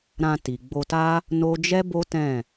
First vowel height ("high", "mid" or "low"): low